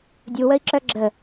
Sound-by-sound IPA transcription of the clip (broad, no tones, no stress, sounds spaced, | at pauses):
dʲ u w ə i̯ ǁ œ ɡ͡ǁ ə